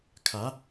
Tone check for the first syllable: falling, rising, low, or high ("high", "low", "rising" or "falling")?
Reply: rising